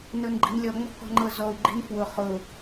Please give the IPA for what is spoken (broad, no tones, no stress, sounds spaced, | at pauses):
n ɤ n ɡ͡ǃ i̤ n lʲ ɔ ŋ͡m ɔ̤ k ɔ̤ ŋ͡ǃ ɤ z ɔ u̯ ɡ͡ǃ i̤ n f w ʊ χ ʊ